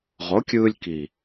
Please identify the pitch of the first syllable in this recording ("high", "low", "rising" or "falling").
rising